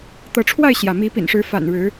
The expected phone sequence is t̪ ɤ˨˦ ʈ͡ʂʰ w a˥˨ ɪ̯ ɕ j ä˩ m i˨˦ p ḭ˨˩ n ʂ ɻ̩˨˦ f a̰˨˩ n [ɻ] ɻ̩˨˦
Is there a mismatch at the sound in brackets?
no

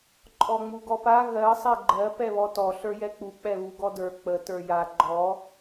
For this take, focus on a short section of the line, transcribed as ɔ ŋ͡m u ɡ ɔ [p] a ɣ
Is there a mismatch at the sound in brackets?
no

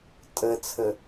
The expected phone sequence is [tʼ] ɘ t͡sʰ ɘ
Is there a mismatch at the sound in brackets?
no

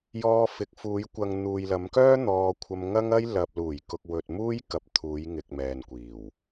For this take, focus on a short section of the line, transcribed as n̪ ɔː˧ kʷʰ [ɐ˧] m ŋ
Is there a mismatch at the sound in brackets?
no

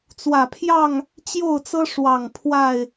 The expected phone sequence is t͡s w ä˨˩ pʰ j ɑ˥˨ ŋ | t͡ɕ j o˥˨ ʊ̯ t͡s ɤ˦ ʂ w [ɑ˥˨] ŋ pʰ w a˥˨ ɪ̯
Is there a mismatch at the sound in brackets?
yes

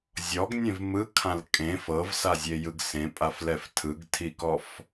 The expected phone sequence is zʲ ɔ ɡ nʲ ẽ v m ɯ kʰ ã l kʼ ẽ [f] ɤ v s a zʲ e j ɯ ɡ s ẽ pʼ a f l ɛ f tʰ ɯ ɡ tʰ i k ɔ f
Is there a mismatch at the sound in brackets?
no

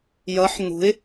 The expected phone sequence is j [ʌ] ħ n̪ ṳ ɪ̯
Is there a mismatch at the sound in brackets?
no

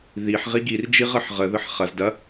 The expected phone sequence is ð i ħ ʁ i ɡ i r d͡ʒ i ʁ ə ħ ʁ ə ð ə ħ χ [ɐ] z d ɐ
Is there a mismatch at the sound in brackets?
no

